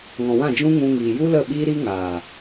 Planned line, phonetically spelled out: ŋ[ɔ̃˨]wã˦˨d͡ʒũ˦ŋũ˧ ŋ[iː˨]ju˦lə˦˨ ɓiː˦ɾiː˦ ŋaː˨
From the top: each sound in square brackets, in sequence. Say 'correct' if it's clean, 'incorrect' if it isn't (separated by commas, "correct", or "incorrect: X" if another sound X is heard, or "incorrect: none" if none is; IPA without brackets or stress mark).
correct, correct